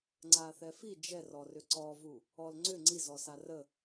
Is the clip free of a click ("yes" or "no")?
no